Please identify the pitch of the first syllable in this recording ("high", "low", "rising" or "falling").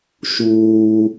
high